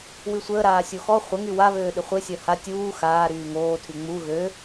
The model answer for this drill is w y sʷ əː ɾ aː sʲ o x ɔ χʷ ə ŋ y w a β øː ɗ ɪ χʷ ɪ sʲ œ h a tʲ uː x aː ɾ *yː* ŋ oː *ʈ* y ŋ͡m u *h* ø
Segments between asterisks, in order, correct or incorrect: correct, incorrect, incorrect

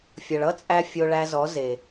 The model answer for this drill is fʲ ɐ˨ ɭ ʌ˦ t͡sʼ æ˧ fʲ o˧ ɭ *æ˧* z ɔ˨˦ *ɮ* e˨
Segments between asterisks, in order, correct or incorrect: correct, incorrect

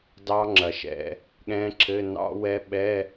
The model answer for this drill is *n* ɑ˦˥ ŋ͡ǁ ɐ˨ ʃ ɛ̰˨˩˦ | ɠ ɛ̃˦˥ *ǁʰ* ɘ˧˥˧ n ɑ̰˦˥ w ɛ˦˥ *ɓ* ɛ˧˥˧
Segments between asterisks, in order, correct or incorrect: incorrect, correct, correct

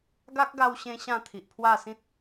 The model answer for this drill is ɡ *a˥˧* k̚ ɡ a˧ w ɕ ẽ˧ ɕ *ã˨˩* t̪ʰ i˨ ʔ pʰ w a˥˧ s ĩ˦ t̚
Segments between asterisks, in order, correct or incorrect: incorrect, incorrect

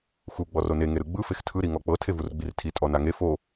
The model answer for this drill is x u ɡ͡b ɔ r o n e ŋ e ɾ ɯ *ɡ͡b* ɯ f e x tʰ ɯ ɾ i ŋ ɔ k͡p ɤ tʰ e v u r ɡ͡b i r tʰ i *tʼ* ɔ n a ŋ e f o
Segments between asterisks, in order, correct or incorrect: correct, correct

